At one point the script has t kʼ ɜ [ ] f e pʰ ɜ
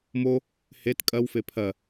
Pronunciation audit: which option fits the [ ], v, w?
w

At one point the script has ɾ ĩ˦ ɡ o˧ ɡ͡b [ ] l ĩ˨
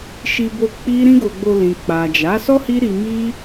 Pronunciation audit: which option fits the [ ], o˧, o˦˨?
o˧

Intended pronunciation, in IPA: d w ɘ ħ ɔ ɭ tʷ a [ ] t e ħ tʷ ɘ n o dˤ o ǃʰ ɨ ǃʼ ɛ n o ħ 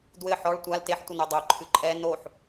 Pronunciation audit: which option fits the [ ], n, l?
l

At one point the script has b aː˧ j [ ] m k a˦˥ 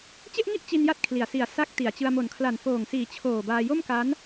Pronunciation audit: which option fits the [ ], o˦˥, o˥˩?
o˥˩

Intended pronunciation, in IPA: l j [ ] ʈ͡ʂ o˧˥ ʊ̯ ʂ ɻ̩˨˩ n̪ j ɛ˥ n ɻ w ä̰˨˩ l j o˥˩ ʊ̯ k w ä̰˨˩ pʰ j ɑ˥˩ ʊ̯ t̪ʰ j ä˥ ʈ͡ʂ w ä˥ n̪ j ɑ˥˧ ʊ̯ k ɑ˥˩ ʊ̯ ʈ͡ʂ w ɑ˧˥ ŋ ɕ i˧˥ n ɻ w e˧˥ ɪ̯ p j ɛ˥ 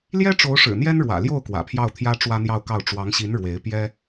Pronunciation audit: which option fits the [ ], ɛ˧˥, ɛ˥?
ɛ˥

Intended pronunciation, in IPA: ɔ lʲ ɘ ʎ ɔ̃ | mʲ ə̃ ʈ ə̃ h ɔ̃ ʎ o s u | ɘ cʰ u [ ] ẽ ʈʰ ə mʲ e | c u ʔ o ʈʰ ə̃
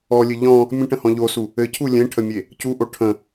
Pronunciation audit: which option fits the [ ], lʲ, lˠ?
lʲ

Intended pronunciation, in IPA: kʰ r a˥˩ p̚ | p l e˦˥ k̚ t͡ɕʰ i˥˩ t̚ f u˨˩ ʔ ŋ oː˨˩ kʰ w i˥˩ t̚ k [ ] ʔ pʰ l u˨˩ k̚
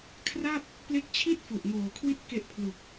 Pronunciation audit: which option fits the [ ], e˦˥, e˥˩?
e˦˥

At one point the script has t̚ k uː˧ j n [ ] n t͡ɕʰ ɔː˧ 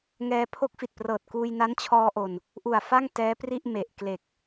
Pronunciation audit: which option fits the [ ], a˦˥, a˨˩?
a˦˥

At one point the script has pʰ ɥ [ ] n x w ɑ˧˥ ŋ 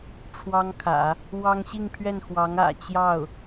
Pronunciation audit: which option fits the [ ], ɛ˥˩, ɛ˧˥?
ɛ˥˩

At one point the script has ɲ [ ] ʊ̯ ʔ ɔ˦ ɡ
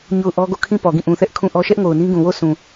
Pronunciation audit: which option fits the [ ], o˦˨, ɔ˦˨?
o˦˨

